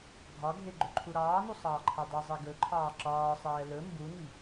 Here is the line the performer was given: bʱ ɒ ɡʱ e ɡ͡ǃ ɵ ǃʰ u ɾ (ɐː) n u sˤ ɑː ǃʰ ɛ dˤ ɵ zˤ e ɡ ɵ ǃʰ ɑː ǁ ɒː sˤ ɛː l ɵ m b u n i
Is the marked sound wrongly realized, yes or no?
yes